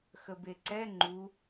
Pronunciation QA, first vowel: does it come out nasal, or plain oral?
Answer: oral